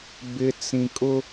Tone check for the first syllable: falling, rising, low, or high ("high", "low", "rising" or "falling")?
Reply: low